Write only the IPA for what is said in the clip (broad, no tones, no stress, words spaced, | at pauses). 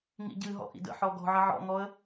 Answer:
ŋḭɟɨɦɔ̰ ʔḭdə̰ ħɔɡɔ̤ʕə ʕɔ̰ŋɔə̯